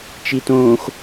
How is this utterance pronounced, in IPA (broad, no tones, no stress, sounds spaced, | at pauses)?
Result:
t͡ʃ i t õː x